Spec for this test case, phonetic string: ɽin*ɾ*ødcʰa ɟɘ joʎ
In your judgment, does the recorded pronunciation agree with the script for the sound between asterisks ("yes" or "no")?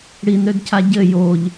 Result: yes